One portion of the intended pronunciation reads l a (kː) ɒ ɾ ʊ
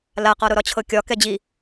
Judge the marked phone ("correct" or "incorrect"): incorrect